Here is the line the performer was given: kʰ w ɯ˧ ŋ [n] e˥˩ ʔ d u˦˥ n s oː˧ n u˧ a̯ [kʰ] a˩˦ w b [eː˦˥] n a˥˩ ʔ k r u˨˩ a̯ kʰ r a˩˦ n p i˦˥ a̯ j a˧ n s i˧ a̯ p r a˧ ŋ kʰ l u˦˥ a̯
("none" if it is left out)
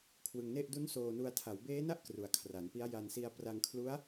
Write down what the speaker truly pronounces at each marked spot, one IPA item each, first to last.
n, tʰ, eː˦˥

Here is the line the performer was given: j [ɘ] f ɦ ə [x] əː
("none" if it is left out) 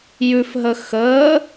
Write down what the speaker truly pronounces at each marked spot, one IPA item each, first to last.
ʉ, x

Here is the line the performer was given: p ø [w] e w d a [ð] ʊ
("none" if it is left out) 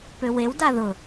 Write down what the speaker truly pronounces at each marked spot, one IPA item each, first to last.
w, ð

